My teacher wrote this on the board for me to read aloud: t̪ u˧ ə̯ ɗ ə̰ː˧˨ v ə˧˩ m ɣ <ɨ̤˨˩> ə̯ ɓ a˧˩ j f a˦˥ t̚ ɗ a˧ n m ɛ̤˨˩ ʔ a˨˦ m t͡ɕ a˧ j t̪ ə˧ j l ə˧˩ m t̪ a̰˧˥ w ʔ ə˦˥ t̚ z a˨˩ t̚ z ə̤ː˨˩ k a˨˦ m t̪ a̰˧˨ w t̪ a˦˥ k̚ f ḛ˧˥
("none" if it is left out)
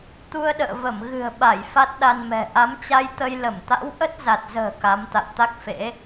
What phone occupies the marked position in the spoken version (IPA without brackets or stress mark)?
ɨ̤˨˩